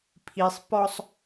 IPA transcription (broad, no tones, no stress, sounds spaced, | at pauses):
pʰ i sˤ p ɔ sˤ